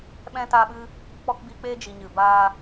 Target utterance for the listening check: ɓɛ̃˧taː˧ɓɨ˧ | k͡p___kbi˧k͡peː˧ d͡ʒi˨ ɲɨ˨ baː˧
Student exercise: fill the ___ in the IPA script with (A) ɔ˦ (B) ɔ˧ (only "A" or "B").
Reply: B